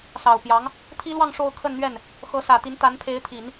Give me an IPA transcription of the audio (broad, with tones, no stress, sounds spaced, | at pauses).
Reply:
s ɑ˨˩ ʊ̯ p j ɑ˧˥ ŋ | t̪ʰ i˥ l w ɑ˥˧ ŋ ʂ o˥˧ ʊ̯ kʰ ə˥˧ n n̪ ɥ ɛ˥˩ n | x ɤ˧˥ s ä˨˩ t̪ i˧˥ n t̪ a˧˥ n pʰ e˧˥ ɪ̯ t̪ʰ i˨˩˦ n